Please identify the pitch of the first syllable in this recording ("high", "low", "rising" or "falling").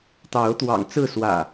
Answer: rising